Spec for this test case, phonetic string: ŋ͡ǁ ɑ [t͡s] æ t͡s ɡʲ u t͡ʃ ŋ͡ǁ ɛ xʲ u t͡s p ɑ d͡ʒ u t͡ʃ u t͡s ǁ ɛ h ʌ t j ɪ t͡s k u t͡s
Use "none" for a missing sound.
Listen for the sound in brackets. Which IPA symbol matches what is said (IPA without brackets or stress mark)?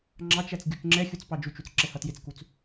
t͡ʃ